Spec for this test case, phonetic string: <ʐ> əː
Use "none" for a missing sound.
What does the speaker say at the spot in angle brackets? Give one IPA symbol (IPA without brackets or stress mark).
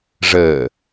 ʐ